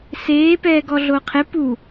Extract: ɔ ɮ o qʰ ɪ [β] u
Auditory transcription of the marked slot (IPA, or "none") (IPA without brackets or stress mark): p